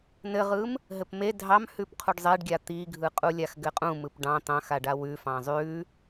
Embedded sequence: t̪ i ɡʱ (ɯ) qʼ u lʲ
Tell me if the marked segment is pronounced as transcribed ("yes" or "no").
yes